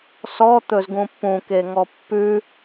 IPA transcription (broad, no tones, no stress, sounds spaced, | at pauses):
s ɔ t̪ ɵ z ɡ ũ pː ũ k e ŋ ɔ pː ʉ